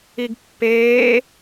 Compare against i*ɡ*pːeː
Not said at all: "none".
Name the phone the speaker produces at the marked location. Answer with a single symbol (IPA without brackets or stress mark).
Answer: ɡ